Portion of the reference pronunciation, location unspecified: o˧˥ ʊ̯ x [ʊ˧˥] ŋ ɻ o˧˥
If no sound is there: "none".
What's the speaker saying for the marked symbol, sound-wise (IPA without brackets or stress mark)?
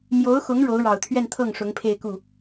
ʊ˧˥